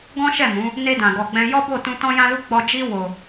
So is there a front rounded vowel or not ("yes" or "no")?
no